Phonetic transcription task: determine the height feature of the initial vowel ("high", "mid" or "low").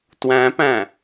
low